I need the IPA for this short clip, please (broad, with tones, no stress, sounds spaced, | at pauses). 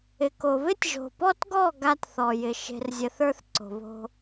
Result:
ɪ˨ k o˨ β ɪ˦ tʲ ʒ o̤˨ p ɔ˦ t ɡ ɔ˦˨ ɡ a˦ t θ ɔ˨ j ɪ˨ ʃ e̤˨ r zʲ ə˨ θ ə˞˦ θ ǀ o̤˨ β o̤˦